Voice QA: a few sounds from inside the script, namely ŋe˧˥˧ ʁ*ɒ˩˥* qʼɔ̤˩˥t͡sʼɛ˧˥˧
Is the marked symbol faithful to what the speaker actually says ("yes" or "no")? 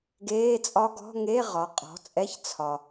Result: yes